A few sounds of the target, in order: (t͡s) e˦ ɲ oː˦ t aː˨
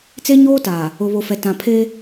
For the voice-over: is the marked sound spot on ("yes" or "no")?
yes